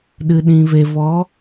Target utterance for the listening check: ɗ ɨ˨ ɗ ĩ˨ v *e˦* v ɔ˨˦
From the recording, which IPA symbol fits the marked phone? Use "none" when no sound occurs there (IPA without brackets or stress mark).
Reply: e˨